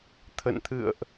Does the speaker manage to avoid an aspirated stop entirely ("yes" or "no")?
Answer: no